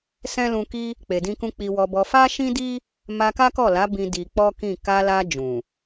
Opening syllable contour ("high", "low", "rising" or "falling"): high